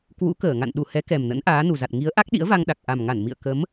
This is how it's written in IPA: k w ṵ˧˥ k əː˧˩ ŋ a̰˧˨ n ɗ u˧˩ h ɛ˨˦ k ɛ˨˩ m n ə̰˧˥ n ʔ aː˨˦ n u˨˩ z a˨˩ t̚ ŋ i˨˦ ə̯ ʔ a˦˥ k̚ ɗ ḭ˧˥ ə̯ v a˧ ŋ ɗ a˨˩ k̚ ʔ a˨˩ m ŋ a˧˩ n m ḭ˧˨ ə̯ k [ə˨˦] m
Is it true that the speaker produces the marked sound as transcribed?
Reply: yes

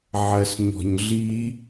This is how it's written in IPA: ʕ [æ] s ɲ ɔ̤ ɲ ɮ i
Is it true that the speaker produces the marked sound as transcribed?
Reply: no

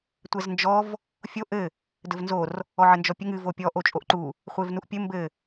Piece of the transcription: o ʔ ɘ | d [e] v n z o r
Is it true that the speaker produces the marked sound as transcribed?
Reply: no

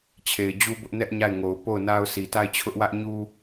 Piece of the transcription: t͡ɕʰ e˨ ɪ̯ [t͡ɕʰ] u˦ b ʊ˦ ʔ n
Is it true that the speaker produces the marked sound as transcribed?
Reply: no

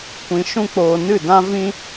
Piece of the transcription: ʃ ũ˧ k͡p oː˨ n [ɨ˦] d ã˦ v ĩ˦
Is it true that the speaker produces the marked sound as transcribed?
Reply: no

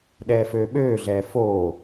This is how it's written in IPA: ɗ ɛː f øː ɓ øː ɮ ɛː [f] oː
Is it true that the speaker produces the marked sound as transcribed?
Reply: yes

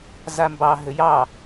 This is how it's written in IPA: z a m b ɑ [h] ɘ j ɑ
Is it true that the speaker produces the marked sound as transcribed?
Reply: no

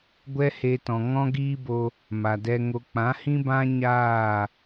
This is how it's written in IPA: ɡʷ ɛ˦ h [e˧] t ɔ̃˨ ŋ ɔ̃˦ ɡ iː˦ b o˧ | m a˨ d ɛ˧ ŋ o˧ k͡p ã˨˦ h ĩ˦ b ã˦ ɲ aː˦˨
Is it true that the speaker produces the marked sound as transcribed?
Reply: yes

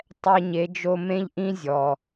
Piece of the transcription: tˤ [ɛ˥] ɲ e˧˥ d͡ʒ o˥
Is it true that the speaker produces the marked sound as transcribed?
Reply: yes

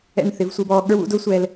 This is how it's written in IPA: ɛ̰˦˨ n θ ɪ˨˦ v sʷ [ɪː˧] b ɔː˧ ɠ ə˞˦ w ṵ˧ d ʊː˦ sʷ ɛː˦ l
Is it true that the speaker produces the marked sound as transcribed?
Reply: yes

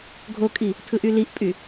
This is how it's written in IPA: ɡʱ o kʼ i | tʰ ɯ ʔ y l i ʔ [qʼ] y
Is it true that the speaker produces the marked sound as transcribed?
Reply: no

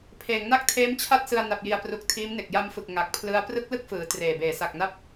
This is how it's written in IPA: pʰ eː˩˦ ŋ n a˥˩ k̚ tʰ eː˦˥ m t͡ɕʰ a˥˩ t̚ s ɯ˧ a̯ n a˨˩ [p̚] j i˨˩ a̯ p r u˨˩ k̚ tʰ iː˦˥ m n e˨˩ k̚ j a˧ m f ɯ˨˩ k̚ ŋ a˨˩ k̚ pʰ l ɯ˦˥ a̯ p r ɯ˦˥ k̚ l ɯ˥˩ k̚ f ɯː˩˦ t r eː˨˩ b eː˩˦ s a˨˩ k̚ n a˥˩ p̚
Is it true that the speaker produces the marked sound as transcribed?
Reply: yes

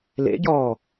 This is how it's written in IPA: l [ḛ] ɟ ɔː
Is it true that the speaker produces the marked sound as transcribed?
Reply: yes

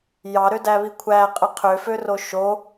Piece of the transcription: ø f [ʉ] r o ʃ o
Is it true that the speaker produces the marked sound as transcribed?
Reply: no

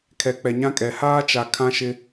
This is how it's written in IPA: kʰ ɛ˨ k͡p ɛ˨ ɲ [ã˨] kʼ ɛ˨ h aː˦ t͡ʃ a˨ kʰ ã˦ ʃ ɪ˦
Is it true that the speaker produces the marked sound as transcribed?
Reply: no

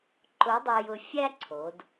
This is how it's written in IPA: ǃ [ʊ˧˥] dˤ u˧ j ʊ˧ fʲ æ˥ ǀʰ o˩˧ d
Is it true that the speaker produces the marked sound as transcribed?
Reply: yes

